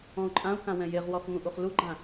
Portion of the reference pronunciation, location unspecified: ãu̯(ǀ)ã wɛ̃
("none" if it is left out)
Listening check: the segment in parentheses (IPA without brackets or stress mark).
k